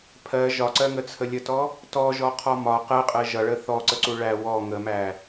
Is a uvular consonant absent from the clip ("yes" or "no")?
no